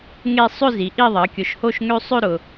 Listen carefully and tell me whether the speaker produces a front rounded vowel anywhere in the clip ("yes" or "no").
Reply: yes